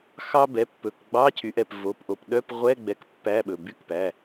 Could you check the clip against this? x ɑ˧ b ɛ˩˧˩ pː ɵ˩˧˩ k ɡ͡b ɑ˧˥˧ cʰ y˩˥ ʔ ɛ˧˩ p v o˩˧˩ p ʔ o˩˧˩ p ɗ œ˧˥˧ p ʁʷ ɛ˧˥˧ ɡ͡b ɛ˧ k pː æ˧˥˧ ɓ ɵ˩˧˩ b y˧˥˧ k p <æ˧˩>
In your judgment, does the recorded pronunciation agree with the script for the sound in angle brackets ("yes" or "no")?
no